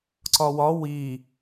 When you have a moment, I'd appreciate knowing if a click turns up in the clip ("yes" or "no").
yes